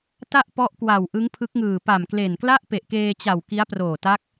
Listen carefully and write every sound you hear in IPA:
t a˥˩ ʔ p ɔ˦˥ ʔ k w a˨˩ w ʔ ɯ˦˥ ŋ pʰ ɯ˦˥ k̚ ŋ ɯː˨˩ p a˨˩ m k l e˨˩ n k l a˥˩ ʔ p e˨˩ ʔ k eː˧ t͡ɕ a˨˩ w k i˦˥ a̯ p r oː˨˩ t a˦˥ k̚

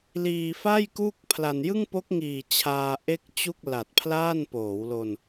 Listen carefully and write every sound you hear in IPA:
l iː˧ f a˥˩ j k uː˥˩ k̚ pʰ l a˧ n j ɯ˥˩ ŋ p o˦˥ k̚ ŋ iː˨˩ t͡ɕʰ aː˧ ʔ e˥˩ k̚ t͡ɕ u˥˩ k̚ l a˨˩ t̚ pʰ l aː˥˩ n p oː˩˦ w l o˧ n

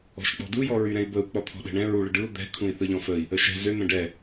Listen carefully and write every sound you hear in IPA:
ɔ̤ ʃ k͡p ɔ̤ d u j ɔ ɹ y ɾ ɛ̃ i̯ b ə u̯ k͡p ɔ t̪ʰ ɔ̤ ɗ ɛ̤ ɳ ɛ̃ ɹ u ɭ ə ɖ ɯ u̯ d̪ ɛ̤ kʰ ũ i̯ θ ɯ ʎ ɔ̃ f ə i̯ | ə ʃ ɛ̤ z ø n̪ ə̃ ɖ ɛ

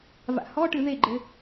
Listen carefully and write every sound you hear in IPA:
v a̰ h ɔ ʈ ɨ ð e ɡ͡ǃ ɘ

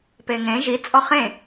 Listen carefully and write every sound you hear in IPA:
p e ŋ ẽ ʒ i t͡sʼ ɔ χ ẽ

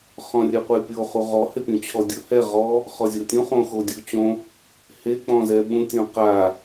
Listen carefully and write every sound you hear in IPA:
χ ɔ̃ rʲ ɛ qʷ ɛ pʲ o χ u ʁ ɔ h ɪ pʲ ũ t͡ɕʰ ɔ dʲ ʊ h ɛ ʁ ɔ | χ ɔ zʲ o tʲ ũ χ õ x o dʲ u t͡ɕ õ | h e k͡p ɔ̃ z ɛ ɓ ũ tʲ õ q a

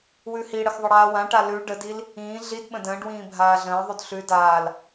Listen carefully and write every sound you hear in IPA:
w ʉ h i ɽ ə x ðˤ ə ɽ aː w ã ʈ a l ʉ ɖ ə d i l | ĩː ɮ i d ɓ ə̃ d ə̃ː ɖ w ĩː bʱ aː ɮ ə̃ː ðˤ ʉ d ɬ ʉ d aː l

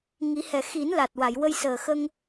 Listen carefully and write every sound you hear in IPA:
ŋ i˨˩˦ h ɛ˨˩˨ x i˨˩˦ n l a˨˩ t̚ w a˨˩˨ j w ə˧ j s əː˨˩ x ə˧ ŋ

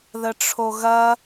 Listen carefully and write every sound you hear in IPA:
ð ə ʈ͡ʂʰ o ɣ ɐ

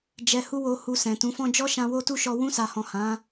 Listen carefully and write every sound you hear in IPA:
d͡ʒ ɛ˧ h u˦ w o˧ h u˧ s ɛ̃˨ t ũ˨˦ f ɔ̃˦ d͡ʒ ɔ˦ ʃ ã˧ w o˦ t u˦ ʃ ɔ˧ w ũ˧ s a˨ h ɔ̃˨ h ã˨˦

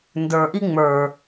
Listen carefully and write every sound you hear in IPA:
n d ə˞ ʔ i ŋ͡m ə˞

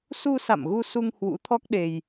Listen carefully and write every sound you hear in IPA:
s u˧ s a̰˧˨ m ɣ u˧ s u˧ ŋ h w ṵ˧˥ t̪ʰ ɔ˦˥ k̚ ɗ e˧ j

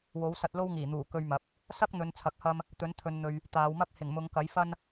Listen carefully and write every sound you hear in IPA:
w o˨˥ w s ɐ˧ t̚ l o˥ w ŋ iː˨˩ n̪ uː˨˩ k ɵ˧ ɥ m ɐ˨˥ p̚ | s ɐ˥ k̚ n̪ ɵ˨˧ n t͡sʰ ɐ˧ k̚ h ɐ˥ m | t̪ ɵ˨˥ n t̪ʰ ɵ˨ n n̪ ɵ˨ ɥ | t̪ aː˨˧ w m ɐ˥ k̚ h ɪ˨˩ ŋ m ʊ˨˧ ŋ k ɐ˨˥ j f ɐ˥ n

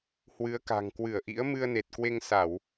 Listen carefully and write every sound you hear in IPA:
h w ɨ˨˦ ə̯ k a̤˨˩ ŋ k w ɨ˧˩ ə̯ ʔ ḭ˧˥ ə̯ m ɨ˧ ə̯ n e˨˩ t̚ k w e˧ ŋ s a˧˩˨ w

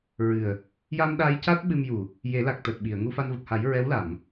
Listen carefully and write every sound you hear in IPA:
ɹ ɨ˨˩ ə̯ | j a˧ m ɗ a˧ j c a˦˥ t̚ ɓ ɨ˧ m j u˨˩ | j e˨˩˦ l a˨˩ k̚ t̪ əː˨˩ t̚ ɓ i˨˩˨ ə̯ ŋ u˧ f a˧ n v ə˨˩ k̚ h a˨˩˦ j ɹ ɛ˧˥ w l a˨˩˨ m

